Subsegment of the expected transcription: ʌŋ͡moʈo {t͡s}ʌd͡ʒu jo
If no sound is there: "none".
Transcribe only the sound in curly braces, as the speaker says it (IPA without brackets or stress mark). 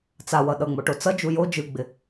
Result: t͡s